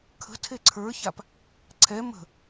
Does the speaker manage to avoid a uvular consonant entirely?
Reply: yes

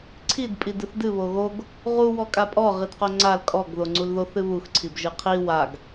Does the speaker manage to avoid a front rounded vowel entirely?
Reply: yes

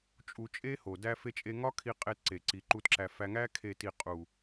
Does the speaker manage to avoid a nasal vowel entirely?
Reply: yes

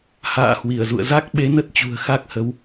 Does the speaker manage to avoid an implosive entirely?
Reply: no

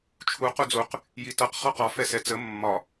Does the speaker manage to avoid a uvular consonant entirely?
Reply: no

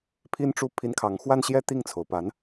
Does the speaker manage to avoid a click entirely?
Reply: yes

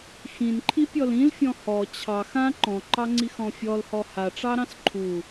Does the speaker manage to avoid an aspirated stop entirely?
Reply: no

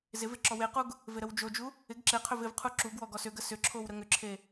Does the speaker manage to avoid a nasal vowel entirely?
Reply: yes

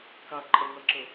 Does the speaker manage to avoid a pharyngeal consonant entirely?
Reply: yes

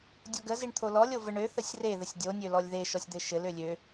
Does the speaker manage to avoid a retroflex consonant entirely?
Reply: no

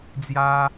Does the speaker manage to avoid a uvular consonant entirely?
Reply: yes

